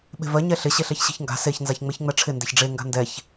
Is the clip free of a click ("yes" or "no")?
yes